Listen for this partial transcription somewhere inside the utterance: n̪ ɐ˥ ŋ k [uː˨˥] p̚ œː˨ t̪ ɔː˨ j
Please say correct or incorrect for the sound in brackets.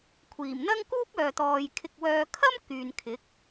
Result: incorrect